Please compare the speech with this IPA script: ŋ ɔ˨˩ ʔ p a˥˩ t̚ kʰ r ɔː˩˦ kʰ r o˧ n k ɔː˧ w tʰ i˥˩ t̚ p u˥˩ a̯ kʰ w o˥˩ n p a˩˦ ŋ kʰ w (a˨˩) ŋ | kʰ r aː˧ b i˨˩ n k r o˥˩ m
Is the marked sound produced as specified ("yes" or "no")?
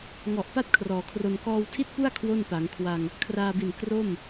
no